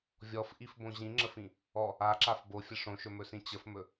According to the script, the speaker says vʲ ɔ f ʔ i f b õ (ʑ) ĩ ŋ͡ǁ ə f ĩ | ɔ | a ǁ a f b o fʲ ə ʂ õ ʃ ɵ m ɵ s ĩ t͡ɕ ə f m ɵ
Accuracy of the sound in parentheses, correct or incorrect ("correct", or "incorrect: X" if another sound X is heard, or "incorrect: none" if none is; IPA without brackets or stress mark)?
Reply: correct